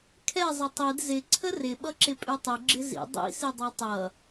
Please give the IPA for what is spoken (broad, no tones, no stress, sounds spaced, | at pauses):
kʰ ɛ zˤ ə tˤ i d z ɪ ǀʰ ə r ɪ ɓ ʌ ǁ ɪ pʼ ʉ tˤ ʉ ɡ͡ǁ ɪ z ḭ dˤ ḭ s i dˤ ɛ tˤ ʌ